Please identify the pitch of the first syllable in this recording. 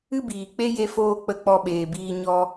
high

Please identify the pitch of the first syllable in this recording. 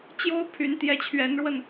high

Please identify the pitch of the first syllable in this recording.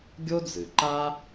high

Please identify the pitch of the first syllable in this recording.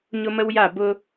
high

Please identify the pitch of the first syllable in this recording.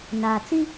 low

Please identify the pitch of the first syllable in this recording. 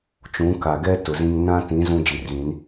rising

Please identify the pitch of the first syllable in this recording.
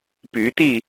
rising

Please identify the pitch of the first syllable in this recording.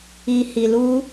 low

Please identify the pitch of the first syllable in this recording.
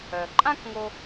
low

